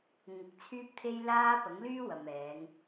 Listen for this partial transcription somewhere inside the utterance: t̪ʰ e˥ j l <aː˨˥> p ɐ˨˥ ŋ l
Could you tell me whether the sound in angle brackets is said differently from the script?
yes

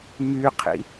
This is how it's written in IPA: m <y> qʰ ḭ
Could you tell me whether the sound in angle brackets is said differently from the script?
no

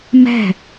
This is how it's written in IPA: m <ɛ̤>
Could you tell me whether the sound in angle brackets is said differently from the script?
no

